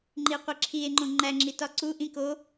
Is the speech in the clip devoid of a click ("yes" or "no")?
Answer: no